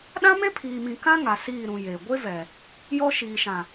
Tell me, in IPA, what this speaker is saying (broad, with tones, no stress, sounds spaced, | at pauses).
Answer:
ɗ ã˦ m e˦ pʰ iː˨ m ĩ˨ k ã˦ ŋ a˨ s iː˦˨ ɾ ũ˨ j e˨ ɡʷ e˦ v ɛ˨ | j ɔ˦ ʃ iː˨ ʃ ã˨